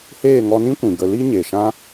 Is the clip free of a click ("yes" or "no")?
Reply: yes